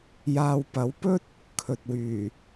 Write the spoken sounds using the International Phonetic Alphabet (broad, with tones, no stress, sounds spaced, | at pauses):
j aː˧ w p ɐ˨˥ w p ɵ˥ t̚ | kʰ ɵ˨ t̚ w yː˨˩